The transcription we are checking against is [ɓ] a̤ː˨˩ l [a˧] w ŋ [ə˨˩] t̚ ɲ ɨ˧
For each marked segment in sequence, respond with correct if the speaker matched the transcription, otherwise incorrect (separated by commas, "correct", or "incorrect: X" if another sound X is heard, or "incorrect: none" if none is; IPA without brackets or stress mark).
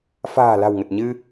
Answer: incorrect: f, incorrect: a̤˨˩, correct